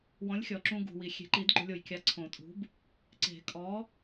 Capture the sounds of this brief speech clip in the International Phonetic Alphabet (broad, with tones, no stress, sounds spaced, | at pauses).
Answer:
w ɔ̃˨˥ lʲ xʲ ɔ˩ ǁ ũ˧ ɡ ṳ˩ w i˩ xʲ e̤˨˩˦ ǃ i˨˩˦ d ɡ͡ǃ ʊ˧ lʲ o˩ j kʲ a˧ ǀʰ õ˨˩˦ tʼ ṳ˨˥ b | ǀ e̤˨˩˦ kʼ ɔ˨˥